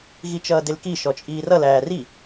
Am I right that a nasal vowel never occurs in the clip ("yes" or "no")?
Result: yes